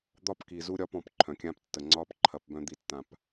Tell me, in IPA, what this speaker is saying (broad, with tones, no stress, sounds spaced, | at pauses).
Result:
d̪ ɒ˦ p k i˨ z u˦ ɾʲ ɒː˦ p ɔ̃˨˦ p ǃʰ œ̃˨ kʲ ãː˦ p tː ə˨ ŋ͡ǀ ɒː˦ p ǃʰ ɐ˨˦ p b œ̃˦ d̪ i˦ tː ã˦ p